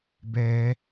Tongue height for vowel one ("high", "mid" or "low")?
mid